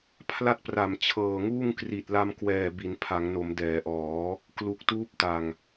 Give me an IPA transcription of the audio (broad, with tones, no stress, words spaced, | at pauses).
pʰla˥˩t̚pra˨˩m t͡ɕʰɤː˨˩ŋuː˥˩ŋ kri˨˩t̚la˧mkwɛː˨˩ bi˩˦npʰa˩˦ŋno˩˦m dɛː˩˦ʔɔː˩˦ | klu˨˩k̚tuː˦˥p̚ta˨˩ŋ